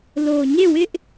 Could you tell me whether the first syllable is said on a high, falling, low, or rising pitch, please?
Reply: low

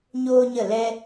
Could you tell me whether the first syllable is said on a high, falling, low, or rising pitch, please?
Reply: high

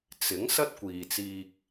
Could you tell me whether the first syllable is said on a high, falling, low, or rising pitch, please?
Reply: rising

